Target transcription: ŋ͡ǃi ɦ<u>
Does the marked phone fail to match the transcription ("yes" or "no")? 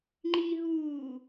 yes